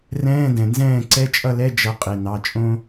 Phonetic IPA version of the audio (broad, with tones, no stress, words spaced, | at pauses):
rɛ̃ː˧˥˧dɛ̃˩nzɛ̃ː˥˨ ǀɛ˧˥˧t͡ʃʼʌ˥˨lɛ˧˥˧ d͡ʒʌ˨˦qʼi˩nɑ˩˧˩ t͡ʃʼõ˥